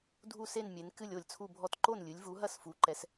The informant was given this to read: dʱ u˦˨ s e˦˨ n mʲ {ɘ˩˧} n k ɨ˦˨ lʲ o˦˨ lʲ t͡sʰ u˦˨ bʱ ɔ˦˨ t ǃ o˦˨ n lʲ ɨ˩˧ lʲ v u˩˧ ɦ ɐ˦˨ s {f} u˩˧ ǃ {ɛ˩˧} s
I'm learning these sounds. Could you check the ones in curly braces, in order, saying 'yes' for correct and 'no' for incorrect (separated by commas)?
no, yes, yes